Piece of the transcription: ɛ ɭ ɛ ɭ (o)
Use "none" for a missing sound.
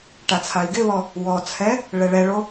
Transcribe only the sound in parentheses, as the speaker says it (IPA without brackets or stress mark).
o